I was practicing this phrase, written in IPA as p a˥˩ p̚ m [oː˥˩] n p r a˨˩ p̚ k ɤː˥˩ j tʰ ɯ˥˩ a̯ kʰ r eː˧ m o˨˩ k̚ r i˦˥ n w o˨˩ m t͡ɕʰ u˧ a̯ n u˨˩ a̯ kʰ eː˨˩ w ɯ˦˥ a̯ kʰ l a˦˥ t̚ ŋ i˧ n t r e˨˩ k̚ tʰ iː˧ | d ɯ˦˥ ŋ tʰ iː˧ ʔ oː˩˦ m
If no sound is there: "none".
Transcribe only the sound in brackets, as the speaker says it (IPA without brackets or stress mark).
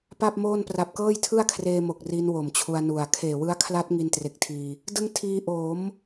oː˥˩